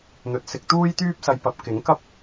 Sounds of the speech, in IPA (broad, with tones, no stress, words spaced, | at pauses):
n̪ɵ˨˥t̚sɪ˧k̚ t̪uː˥jt̪yː˥p̚sɐ˧j pɐ˧p̚ kɪ˨˥ŋkɐ˥p̚